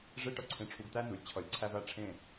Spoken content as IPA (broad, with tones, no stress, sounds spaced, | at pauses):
ʐ e˦˥ ʈ ʌ˧ ǀʰ ẽ˧ ʈ͡ʂʰ u˧ ɡ t̪ æ˦˥ n u˩˧ lʲ t͡ɕʰ ʌ˨˩ lʲ ǀʰ æ˧ v æ˥˨ ʈ͡ʂʰ ẽ˥˨